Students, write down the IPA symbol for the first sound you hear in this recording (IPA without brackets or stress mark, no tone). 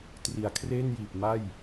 t